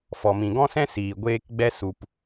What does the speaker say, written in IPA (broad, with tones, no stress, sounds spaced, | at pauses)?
f ɔ˨ m ĩ˨ ɡ ɔ̃˦ s ɛ̃˦ s iː˨ ɡʷ eː˧ k ɡ͡b ɛ˧ s u˨ p